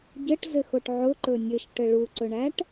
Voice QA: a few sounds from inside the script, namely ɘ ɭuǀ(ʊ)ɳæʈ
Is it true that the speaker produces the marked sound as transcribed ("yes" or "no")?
no